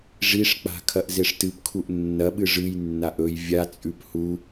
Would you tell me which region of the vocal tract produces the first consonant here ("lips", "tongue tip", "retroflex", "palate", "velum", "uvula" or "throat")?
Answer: retroflex